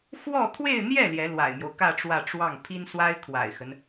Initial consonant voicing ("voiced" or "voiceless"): voiceless